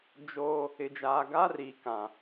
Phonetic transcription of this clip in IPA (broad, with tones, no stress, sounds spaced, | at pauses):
d͡ʒ oː˦ | ɪ˨ d͡ʒ aː˨ ɡ aː˦ r iː˨ k ã˨